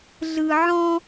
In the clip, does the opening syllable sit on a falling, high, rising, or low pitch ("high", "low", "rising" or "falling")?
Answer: low